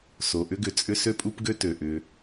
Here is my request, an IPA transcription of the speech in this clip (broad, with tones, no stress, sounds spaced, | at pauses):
s o˨ ʔ ʏ˥ ɡ ʏ˨ t͡sʼ ʏ˥ s ø˦ pʼ u˦ p ɡ ø˥ t ø˩ ʔ ʏ˨